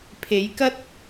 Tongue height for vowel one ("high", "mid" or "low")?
mid